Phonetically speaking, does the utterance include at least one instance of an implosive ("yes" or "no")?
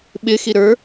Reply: yes